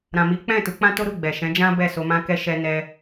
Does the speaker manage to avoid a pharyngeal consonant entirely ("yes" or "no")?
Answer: yes